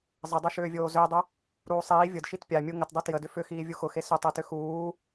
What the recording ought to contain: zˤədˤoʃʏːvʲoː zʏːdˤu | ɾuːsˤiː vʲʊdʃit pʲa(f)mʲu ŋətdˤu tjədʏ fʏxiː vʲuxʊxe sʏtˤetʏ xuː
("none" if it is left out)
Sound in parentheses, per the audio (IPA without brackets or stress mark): none